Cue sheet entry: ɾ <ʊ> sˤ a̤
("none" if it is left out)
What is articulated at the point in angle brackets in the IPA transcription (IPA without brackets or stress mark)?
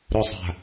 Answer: ʊ